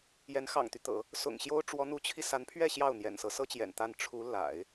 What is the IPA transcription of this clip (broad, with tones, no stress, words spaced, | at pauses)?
jɛ˧˥nxɑ̰˨˩ŋt̪y˦ t̪ɤ̰˨˩˦ | sʊ̰˨˩ŋɕjo˥ʊ̯ ʈ͡ʂwɔ˧˥n̪u˧˥t͡ɕʰi˧ sa˧˥npʰɥɛ˥˧ ɕjɑ˥˩ʊ̯n̪jɛ̰˨˩nsɤ˧˥ sɤ˥t͡ɕjɛ̰˨˩n t̪a˥˩n ʈ͡ʂʰu˧˥ la̰˨˩˦ɪ̯